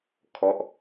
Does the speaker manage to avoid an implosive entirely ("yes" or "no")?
yes